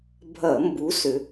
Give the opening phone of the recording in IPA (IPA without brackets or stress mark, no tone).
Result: bʱ